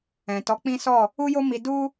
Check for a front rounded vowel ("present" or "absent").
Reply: absent